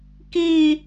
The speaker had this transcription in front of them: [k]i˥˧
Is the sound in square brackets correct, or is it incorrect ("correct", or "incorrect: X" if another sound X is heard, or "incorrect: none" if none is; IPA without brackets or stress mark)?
correct